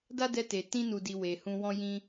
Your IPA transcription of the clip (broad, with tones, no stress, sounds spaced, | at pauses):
d a˦ d ɛ˧ t e˨ t ĩ˧ n u˨ d i˨ w e˨ h ũ˧ w ɔ̃˦ j ĩ˧